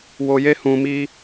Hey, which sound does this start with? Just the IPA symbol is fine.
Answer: w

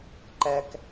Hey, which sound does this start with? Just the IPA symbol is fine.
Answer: ǃ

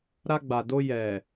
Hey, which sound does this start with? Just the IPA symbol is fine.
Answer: ɾ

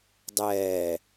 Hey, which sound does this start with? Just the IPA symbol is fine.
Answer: dˤ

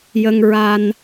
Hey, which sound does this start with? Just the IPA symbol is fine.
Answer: j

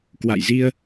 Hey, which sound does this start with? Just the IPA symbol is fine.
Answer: k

